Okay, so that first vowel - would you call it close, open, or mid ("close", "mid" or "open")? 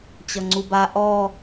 mid